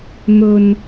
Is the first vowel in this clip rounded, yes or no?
yes